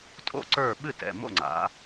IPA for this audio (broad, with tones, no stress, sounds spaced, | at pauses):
tʼ o̰˥˩ ǀ ə˞˥˩ ɓ ɨ˥˩ t ɛ̰˩˧˩ m o̰˥˩ ŋ͡ǀ a̰˩˥